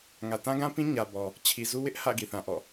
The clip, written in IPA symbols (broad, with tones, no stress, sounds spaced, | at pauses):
ŋ ä˨ t ã˦ ɡ ã˦ p ĩ˦ ɲ ä˨ b ɔ˨ | t͡ɕʰ i˨ z u˦ w ɪ˦ ʔ h ä̰˦˨ ɡ i˨ θ ã˨ ʔ ɔ̰˦˨